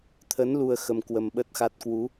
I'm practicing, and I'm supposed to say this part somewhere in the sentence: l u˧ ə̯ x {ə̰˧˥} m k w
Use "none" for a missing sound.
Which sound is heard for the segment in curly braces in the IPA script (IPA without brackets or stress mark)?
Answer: ə˧